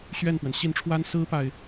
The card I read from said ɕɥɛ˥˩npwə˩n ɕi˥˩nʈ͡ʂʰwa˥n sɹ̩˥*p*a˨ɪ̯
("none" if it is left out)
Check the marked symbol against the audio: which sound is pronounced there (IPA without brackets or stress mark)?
p